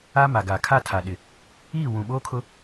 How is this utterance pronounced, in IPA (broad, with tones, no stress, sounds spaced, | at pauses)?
a˦ m a˨ ɡ aː˨ kʰ a˦˨ tʰ a˨ ɗ ɪ˨ | iː˦˨ w ũ˨ ɓ oː˦ kʰ ʊ˦